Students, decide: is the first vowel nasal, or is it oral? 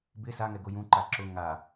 oral